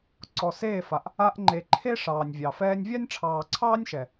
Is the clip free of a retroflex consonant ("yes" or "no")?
no